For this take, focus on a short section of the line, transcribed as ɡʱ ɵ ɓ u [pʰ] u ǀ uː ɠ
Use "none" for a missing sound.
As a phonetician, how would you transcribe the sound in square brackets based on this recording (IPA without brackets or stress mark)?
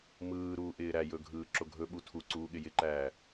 tʰ